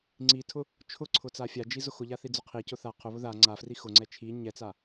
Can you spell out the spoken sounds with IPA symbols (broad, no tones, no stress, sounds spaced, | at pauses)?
ŋ͡ǀ i tʰ ʊ | t͡ʃʰ ʊ ǀʰ ʊ t͡s a fʲ a d͡ʒ i z ʊ x ʊ ʎ a θ i d͡z ʊ qʰ i c ʊ θ a qʰ ʊ β ʊ ð a ŋ͡ǀ a f r i x ʊ ŋ͡ǀ ɛ t͡ʃʰ i ɲ ɛ t͡s a